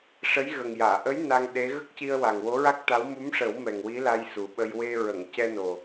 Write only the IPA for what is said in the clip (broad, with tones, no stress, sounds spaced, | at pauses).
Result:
ʂ ə˧˥ j ɣ ə˨˩ ŋ j aː˨˩˨ ʔ ə˧˥ j n a˧ ŋ ɗ e˧˥ ɣ ə˦˥ k̚ c i˧ ə̯ w a˨˩ ŋ w o˧˥ ɹ a˦˥ k̚ t̪ a˧˥ w m u˧˥ m ʂ ə˨˩˦ w m ɛ˨˩ ŋ w i˧˥ l a˧ j s u˨˩ ɓ ə˧ j w e˧ ɹ ə˨˩˨ ŋ c ɛ˧ n o˨˩